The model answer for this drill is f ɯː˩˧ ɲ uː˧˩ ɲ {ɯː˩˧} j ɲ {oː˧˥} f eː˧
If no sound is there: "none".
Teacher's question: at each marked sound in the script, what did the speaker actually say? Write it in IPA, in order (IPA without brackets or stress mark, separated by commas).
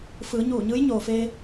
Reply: ɯː˧˥, oː˩